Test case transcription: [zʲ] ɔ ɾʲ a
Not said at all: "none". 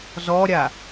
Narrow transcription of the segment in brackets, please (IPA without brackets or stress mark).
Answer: z